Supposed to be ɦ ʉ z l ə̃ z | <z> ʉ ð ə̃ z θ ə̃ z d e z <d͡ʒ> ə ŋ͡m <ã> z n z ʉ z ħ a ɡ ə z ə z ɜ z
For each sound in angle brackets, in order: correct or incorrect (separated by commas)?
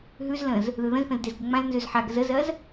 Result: incorrect, incorrect, correct